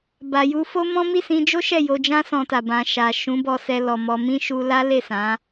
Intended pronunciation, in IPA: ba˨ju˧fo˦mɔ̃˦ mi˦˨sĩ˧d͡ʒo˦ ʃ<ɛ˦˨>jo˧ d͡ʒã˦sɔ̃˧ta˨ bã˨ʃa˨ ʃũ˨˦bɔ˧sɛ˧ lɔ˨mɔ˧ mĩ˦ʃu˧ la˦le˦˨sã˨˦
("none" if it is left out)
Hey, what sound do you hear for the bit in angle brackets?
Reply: ɛ˦˨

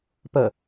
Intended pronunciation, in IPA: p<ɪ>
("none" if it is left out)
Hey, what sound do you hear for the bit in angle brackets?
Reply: ə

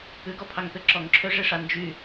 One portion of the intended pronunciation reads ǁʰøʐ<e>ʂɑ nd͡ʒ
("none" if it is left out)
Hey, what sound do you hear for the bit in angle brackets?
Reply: e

